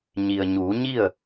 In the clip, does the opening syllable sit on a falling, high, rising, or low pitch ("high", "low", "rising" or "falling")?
low